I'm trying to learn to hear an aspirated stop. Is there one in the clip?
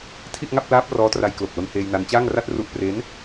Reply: yes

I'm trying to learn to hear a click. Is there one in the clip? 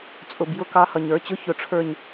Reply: no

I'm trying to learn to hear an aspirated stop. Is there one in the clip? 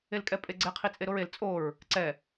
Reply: yes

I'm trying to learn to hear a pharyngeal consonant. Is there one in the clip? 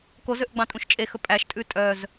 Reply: no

